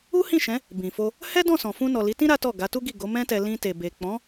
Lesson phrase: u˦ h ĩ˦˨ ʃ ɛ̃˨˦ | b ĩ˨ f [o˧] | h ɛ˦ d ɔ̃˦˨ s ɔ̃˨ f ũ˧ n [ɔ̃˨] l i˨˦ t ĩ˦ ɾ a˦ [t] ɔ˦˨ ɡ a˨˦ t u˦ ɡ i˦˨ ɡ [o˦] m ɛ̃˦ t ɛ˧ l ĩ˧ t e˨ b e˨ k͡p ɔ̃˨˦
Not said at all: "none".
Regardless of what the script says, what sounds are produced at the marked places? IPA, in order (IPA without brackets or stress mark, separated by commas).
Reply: o˧, ɔ˨, t, o˨˦